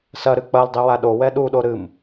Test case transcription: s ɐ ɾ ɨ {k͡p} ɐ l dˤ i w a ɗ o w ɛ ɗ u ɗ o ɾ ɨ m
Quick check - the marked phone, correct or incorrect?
correct